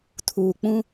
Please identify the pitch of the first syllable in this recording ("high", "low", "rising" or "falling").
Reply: low